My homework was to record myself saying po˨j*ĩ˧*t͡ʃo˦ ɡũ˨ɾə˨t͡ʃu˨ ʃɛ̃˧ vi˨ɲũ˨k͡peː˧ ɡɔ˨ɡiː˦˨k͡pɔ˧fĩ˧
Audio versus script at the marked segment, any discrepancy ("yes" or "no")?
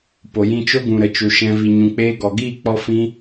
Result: no